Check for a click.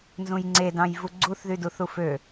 present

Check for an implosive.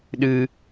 present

